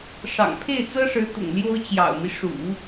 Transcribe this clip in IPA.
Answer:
ʂɑ̰˨˩ŋpʰe˥˩ɪ̯t͡sɤ˥ʂɻ̩˧˥ t̪ʊ̰˨˩ŋljo˥ʊ̯ t͡ɕjɑ̰˨˩ʊ̯mi˦ʂṵ˨˩˦

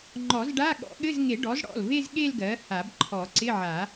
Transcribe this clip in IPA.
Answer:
ŋ͡ǃɔ˨˩˦z ɖa˧˥˧ ɠɔ̰˨˩˦ɠɘ˧˥˧zŋe˨˩˦ɖɔ˩˥z ɽɔ̰˩˧˩lve˥˧z ɠe˥˧lɡɜ˩˥ ha˨˩˦bǃʰɔ˨˩˦ǀɪ˧˥˧ʕa˨˩˦

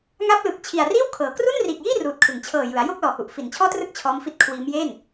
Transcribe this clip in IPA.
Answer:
ŋa˦˥p̚lɯ˨˩k̚ t͡ɕʰi˨˩a̯riː˥˩wkʰɤː˩˦ kru˥˩nriː˨˩k̚jiː˥˩ ruː˨˩t̚kʰɯ˩˦ŋ t͡ɕʰɤː˨˩jɯ˩˦a̯ jo˥˩k̚lɔː˨˩hu˨˩ʔ fi˨˩nt͡ɕʰɔː˥˩trɯ˥˩k̚ t͡ɕʰɔː˦˥mfi˦˥t̚ kʰwiː˦˥mje˥˩n

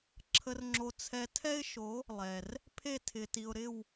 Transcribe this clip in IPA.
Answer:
ǁʰə˧rŋ͡ǁo˧t͡sʰɛ˧ tʰɛ˦ɪ̯ʃo˨˦ | lˠɛ˨r | pʰe˦˨tʰɪ˨ti˨ʊ̯ɾɪ˦˨w

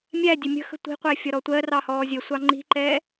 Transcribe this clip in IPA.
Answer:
mʲæ dʲəmʲə̤xə̤ tʷi̤qʷæ fʲɒɾɔtʷɜrɑ hɔːzʲəsʷɑ ŋ͡ǃi̤ǃɛ

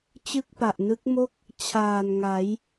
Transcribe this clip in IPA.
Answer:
t͡ɕɯ˥˩k̚pa˨˩ʔnɯ˦˥k̚mo˥˩k̚ | t͡ɕʰaː˨˩nŋa˩˦j

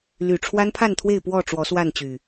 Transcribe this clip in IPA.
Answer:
ly˨˩ʈ͡ʂʰwa˦n pʰa˥˨nt̪ʰwe˥˨ɪ̯ pwɔ˥˨ ʈ͡ʂwɔ˨˦swa˥˨nt͡ɕy˨˩

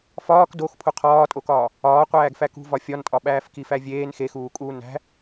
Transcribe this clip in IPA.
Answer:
fɒːk dox pʰuqʰɒːtʼokɒː | ɒː qʷæːɡfækṳvɒ fʲɒntʼɒ ɓæːfkifævʲeːn xexuːkʼuː næ̤

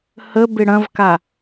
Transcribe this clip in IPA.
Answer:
həbɪ ɽɐ̃vka

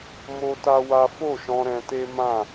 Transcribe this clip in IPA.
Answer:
mo˦ta˦wa˦ fo˦˨ʃɔ̃˧ ɾɛ̃˧te˦ mã˦˨

